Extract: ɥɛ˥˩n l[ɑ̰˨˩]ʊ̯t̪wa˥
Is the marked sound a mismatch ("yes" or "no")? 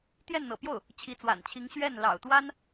no